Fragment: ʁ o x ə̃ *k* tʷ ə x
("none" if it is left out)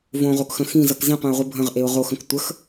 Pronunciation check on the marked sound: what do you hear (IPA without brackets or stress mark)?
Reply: k